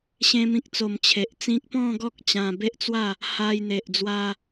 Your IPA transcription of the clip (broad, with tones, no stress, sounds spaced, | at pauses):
ɕ ẽ˧ m ĩ˨ k̚ t͡s o˨˩ m t͡ɕʰ e˨ ʔ t͡s ĩ˦ k̚ p ɔ̃˥˧ ɡ ɔ˦ k̚ t͡ɕ ã˧ b e˦ ʔ t͡s w a˥˧ | h a˧ j n̪ e˨ ʔ d͡z w a˧